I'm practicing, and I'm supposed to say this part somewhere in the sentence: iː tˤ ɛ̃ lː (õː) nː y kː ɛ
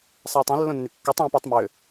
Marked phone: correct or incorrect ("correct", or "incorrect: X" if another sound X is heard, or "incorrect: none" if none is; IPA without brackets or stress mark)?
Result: incorrect: õ